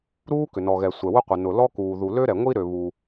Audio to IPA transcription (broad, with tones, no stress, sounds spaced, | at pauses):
ɾ uː˥ k ʏ˩ n ɔ˩ ɣ ɛ˩ sʷ ɛ˩ w ʊ˥ qʷ ɪ˩ n ʊ˩ l ɔ˥ k uː˩ ð u˩ l ø˥ ɾ ɛ˩ ŋʷ i˥ ɾ ø˩ β u˩